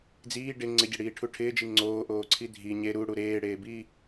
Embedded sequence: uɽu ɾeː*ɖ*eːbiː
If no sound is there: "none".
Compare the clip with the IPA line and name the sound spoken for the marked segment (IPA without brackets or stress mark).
ɽ